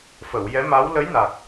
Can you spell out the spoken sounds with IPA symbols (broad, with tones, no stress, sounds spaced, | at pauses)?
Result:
f ə˨˩˨ w j ɛ˧˥ m a˧˥ w l ə˧˥ j n a˨˩ k̚